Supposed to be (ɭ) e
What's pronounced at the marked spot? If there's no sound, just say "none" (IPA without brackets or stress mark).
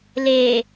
l